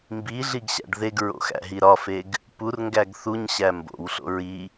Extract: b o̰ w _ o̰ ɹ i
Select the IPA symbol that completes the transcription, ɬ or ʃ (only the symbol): ɬ